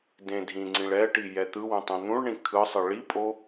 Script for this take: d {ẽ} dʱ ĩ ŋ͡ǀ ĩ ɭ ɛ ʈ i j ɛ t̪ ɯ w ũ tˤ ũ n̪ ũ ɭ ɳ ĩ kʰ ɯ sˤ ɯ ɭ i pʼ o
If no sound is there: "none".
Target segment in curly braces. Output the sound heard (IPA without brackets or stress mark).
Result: ẽ